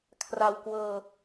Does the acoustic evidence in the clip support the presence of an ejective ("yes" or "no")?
no